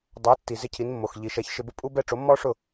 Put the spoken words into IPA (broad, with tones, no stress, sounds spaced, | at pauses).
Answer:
dˤ a˩˥ tː i˩ z ɪ˥˩ cʰ i˩˥ n mː o˩ x ʎ i˩ ʃ ɛ˩˥ ç ʃ ɪ˧ b ʊ˥ pʼ u˥ b ɛ˥ ʈ͡ʂ o˩˥ mː ɔ˥ ʂ ʊ˥˩